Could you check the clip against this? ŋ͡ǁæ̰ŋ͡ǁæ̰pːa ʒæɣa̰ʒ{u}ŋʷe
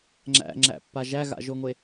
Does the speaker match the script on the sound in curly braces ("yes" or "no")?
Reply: no